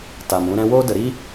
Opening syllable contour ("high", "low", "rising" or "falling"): low